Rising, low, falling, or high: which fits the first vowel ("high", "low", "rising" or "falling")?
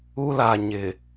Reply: high